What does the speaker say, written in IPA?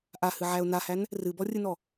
ʔahɨʕæʊ̯ nahæn | rɨbɔrʲɨnɔ

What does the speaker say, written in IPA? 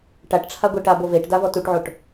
ʈaʈʈ͡ʂʰa ɡʷɛʈabo veʈda vɔtuʈʕoʈ

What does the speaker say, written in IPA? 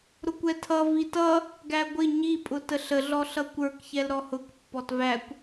ɾʊkʷɛtʰʌ vitʌ | ɡæɡʷɪ ɲipʼʊ təɬəɮɔ ɬʌkʷə˞kçɛl ɾɔhʊk pːɔtvækʷ

